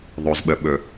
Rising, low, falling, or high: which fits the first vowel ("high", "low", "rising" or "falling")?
low